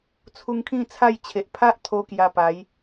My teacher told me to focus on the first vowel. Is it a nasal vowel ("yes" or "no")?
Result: no